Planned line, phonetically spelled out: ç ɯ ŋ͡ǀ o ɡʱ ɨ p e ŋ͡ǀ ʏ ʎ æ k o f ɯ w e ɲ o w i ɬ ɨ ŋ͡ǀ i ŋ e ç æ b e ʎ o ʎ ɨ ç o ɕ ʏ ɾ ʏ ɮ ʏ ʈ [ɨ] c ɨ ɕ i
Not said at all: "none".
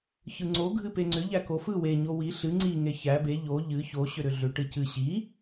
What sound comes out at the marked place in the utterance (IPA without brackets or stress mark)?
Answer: ɨ